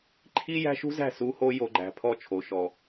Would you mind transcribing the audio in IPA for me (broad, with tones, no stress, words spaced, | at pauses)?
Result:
ǃʰi˦ jæ̤˦ʃṳ˦zæ̤˦˨ su˦ho˦ jo˨ɡ͡ǃæ̤˨ pʰɔ˦˨t͡ʃʰo˨ʃɔ˨